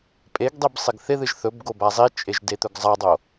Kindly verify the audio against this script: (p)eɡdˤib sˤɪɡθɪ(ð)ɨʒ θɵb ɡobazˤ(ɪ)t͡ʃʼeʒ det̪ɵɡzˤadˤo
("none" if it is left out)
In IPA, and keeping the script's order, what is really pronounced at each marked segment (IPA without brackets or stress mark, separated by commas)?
pʼ, ð, i